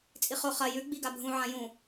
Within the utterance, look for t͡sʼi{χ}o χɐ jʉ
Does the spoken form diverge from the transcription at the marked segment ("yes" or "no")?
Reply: no